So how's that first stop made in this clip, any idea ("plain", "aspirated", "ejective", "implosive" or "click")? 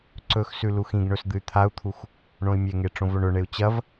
click